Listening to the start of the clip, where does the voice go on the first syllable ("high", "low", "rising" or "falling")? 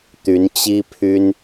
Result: rising